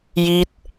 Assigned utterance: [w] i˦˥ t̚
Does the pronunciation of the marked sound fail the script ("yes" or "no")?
yes